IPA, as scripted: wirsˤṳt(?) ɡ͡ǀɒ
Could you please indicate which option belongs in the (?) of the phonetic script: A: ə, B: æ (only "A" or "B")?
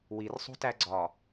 B